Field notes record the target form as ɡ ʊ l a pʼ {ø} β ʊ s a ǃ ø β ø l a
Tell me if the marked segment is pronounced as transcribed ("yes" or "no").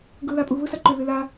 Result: no